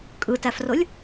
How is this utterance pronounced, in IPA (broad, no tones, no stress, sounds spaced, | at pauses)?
kʼ ɯ t æ f r o lʲ